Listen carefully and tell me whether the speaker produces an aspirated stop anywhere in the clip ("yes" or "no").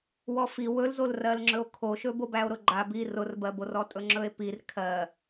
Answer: yes